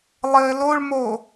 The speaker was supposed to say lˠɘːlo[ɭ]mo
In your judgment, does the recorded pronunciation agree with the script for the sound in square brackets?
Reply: yes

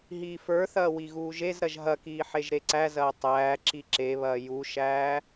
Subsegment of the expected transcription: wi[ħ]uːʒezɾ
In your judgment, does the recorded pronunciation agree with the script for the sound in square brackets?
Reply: no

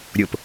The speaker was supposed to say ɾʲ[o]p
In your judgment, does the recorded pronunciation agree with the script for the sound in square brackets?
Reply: yes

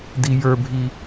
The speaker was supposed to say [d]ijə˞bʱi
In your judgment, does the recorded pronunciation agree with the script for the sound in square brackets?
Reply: yes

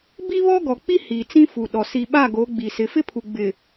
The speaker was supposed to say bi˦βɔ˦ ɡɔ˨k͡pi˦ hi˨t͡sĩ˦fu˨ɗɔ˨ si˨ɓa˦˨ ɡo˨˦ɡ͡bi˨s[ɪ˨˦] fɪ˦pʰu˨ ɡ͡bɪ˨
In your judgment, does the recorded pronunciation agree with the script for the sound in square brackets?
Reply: yes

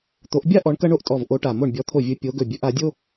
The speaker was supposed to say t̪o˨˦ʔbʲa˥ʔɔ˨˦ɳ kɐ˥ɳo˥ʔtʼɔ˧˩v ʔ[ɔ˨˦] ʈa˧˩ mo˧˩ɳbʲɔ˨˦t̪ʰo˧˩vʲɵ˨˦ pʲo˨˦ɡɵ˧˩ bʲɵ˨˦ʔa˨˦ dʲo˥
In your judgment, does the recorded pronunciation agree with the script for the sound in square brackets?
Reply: no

